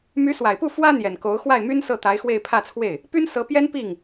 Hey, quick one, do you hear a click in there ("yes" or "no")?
no